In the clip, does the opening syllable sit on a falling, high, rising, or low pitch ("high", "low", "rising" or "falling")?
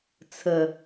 low